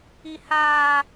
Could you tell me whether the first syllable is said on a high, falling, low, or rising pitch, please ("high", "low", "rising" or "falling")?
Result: high